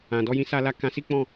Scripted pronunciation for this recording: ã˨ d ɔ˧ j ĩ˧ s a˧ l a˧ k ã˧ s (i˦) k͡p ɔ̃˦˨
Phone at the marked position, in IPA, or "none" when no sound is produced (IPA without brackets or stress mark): i˦